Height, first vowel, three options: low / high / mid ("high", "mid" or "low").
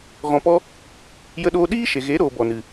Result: mid